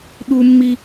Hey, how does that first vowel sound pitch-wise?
high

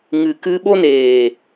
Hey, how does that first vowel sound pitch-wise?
low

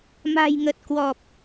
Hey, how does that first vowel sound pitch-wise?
low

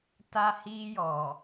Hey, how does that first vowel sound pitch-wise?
high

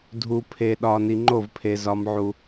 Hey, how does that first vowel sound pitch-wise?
low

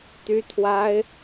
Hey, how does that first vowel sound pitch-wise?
high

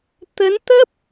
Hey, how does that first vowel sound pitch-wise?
rising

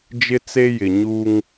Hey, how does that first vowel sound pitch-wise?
high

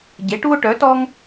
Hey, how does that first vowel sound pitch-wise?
rising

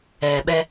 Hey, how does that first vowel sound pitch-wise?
low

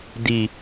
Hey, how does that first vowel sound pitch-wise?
low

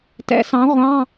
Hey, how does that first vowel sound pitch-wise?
rising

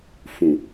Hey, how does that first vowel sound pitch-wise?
low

